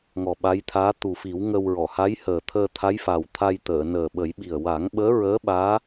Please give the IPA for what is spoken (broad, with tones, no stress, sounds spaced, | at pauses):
ŋ ɔ˨˩ ɓ a˧˥ j t̪ʰ aː˧˥ t̪ u˨˩ f i˨˩˦ w ŋ ə˧ w ɹ ɔ˨˩˨ h a˧˥ j h əː˨˩ t̪ʰ əː˧ t̪ʰ a˧˥ j f a˨˩ w t̪ʰ a˧ j t̪ əː˨˩˨ n əː˨˩ ɓ ə˨˩˦ j ɓ i˨˩ ə̯ w a˨˩˦ ŋ ɓ əː˧˥ ɹ əː˧˥ ɓ aː˧˥